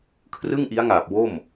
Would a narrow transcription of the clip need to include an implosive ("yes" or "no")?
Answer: no